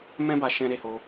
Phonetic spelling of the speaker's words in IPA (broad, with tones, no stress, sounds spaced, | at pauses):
m ɛ̃˦ b a˧ ʃ ɛ̃˧ ɾ e˧ h o˧